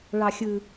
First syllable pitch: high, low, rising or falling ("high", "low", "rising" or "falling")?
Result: high